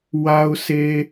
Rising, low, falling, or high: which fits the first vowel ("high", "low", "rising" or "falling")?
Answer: low